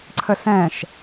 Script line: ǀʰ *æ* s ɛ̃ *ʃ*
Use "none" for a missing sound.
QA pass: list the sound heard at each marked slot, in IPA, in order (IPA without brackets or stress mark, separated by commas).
ə, ʃ